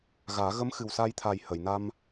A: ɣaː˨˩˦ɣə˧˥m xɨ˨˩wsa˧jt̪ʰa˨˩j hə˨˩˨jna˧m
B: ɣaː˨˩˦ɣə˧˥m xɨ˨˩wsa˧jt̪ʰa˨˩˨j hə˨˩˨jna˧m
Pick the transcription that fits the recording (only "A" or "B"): A